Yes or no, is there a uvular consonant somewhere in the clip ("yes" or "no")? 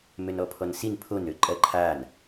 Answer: no